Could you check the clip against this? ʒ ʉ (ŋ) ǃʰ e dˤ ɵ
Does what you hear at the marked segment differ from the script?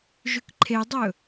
yes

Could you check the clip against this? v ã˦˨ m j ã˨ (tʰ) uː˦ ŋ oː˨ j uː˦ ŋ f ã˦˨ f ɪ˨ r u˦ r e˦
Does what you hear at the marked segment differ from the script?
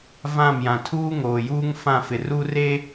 no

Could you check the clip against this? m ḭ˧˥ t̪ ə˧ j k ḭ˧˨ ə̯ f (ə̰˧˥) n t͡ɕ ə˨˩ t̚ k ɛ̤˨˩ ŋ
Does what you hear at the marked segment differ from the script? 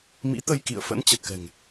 no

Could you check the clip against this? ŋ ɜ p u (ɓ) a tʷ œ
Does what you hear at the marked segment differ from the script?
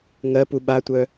no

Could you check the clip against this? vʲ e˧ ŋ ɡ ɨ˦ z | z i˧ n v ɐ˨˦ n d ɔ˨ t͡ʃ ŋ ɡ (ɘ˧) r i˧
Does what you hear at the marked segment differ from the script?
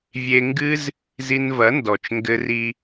no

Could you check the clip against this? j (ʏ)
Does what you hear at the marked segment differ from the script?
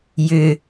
no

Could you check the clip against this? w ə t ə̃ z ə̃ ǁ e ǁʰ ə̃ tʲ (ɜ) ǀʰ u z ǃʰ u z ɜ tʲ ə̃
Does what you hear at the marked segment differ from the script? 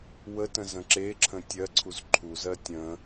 no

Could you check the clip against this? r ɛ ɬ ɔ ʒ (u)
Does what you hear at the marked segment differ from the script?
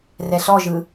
yes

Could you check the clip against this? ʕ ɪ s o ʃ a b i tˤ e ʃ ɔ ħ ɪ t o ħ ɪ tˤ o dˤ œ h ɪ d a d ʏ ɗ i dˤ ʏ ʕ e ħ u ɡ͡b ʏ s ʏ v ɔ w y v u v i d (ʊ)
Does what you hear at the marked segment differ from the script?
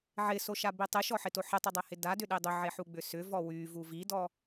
yes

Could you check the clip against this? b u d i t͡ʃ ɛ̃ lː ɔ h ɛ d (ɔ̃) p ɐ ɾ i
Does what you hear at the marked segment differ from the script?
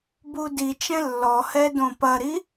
yes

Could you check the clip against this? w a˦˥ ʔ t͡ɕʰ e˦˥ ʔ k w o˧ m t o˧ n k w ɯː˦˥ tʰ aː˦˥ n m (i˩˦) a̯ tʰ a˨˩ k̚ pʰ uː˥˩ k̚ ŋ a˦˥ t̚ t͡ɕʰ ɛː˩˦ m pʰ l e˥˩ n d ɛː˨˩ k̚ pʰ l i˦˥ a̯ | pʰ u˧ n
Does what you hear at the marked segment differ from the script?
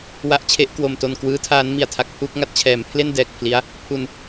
no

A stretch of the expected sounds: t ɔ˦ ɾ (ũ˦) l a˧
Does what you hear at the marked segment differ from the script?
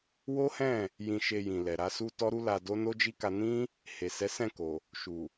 yes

